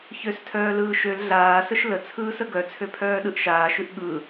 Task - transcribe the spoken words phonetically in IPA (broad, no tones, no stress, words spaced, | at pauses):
çøstʰœːlɯː ʃøl ɮaːsəʃ lət͡sʰɯːsə ɡœt͡sʰøpʰœːɗɯʔ ʃaːʃʉʔ ɠɯ